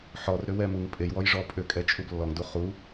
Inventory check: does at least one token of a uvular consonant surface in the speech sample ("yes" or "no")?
yes